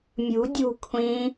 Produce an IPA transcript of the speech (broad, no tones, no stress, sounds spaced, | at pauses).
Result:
mʲ ṳ dʲ ṳ kʷʰ ĩ